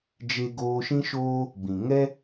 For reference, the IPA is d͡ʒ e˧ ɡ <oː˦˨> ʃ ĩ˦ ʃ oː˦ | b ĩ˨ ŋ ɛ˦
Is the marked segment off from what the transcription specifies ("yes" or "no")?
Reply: yes